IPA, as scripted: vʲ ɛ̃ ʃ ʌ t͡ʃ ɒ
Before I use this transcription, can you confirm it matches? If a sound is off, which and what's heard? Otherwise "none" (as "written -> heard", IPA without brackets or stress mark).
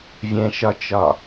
ʌ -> ɒ